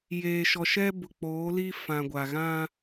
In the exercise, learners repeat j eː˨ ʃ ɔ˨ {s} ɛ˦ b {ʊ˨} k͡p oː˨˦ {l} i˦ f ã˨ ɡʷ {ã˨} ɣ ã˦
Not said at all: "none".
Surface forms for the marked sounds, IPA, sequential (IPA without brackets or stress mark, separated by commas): ʃ, ʊ˨, l, a˨